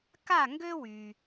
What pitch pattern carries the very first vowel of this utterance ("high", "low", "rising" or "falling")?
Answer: falling